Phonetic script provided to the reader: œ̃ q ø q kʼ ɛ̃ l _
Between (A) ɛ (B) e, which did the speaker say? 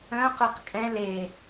B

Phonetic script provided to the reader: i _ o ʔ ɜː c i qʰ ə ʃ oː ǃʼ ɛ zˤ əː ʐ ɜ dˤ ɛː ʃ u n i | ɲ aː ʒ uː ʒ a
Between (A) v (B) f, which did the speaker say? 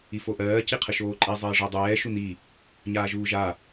B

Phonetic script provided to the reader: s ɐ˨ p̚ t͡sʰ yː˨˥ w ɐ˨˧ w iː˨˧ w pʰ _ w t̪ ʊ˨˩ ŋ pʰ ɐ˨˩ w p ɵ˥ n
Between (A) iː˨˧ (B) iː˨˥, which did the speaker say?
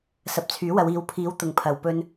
A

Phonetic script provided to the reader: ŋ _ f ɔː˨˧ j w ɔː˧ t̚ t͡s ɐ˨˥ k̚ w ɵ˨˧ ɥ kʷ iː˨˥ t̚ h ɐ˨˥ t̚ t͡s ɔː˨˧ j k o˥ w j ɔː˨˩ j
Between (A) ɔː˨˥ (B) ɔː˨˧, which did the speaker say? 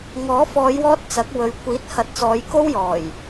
A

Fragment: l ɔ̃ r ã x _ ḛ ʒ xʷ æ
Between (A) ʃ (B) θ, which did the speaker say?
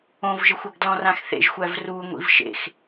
B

